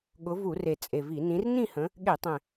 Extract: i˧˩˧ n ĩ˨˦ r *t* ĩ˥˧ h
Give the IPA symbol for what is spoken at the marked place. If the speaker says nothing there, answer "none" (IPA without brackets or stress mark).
n